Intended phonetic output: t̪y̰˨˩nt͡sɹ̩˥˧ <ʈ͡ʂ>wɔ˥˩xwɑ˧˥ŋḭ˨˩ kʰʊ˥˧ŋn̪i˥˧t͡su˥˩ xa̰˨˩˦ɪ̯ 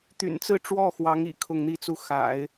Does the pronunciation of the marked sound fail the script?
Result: no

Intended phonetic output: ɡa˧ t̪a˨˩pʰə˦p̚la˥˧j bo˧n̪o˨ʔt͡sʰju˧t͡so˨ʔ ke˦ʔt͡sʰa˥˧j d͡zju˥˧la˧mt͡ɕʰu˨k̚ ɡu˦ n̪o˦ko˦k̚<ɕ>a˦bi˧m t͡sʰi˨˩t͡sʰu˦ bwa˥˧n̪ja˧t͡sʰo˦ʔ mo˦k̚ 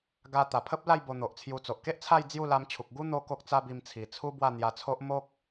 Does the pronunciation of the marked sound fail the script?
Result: yes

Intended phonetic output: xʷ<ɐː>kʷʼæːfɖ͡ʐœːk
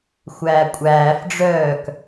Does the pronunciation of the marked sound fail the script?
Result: yes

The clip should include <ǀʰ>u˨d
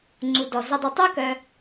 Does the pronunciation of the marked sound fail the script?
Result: yes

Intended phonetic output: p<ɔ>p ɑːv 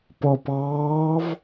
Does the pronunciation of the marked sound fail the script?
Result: no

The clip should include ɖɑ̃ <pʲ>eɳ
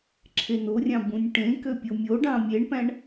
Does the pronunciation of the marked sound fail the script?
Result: yes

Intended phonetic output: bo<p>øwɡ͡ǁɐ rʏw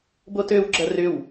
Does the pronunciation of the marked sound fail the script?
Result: yes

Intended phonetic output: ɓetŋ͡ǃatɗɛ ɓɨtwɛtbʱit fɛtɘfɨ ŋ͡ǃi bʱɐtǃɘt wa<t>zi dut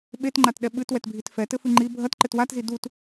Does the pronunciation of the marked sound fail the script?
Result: no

